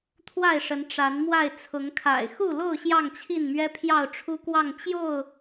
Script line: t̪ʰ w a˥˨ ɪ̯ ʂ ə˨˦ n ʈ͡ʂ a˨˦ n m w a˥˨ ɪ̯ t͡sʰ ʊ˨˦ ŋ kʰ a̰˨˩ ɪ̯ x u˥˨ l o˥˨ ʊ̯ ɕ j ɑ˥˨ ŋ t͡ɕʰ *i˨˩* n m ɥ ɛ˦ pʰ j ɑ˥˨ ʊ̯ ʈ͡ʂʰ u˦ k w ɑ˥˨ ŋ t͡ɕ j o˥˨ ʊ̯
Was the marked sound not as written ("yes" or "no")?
yes